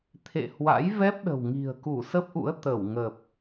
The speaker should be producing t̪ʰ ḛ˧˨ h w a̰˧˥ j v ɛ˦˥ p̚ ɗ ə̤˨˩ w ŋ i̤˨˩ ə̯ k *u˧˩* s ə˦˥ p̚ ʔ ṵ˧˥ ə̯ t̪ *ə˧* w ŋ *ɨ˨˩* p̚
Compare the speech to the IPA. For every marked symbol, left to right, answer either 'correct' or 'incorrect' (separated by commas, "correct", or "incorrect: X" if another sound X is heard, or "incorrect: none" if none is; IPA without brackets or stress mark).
correct, incorrect: ə˧˩, incorrect: ə˨˩